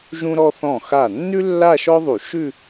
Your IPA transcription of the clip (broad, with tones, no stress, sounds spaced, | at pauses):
ʒ ũ˥ ɾ ɔ˥ θ ɔ̃˥˩ x a˥˩ nː ʉ˥ lː a˥˧ ʃ ɔ˥ ðˤ u˧˩˧ ʃ ʉ˥˧